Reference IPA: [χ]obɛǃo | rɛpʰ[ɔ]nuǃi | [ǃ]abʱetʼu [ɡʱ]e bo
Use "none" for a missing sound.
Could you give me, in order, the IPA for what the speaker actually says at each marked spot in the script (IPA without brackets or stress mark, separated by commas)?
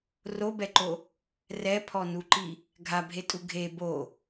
r, ɔ, ɡʱ, ɡʱ